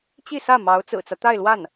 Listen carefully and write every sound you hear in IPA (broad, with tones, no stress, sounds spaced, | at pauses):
t͡ɕ i˥˧ s ä˥˩ m ɑ˧˥ ʊ̯ t͡s ɹ̩˨˩ t͡s ä˦ t̪ a˥˧ ɪ̯ l w a˥˩ n